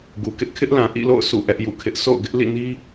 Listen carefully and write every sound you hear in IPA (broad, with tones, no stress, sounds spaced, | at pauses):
ɡ u˨ k ɪ˦ ʔ kʰ ɪ˦ ʔ l ã˨ ʔ ḭ˦˨ l o̰˦˨ ʊ̯ s ṵ˦˨ ʔ ɛ˦ ʔ j ṵ˦˨ kʰ ɪ˦ ʔ s o̰˦˨ ʊ̯ ɡ ɪ˦ ʔ l ḭ˦˨ n i˦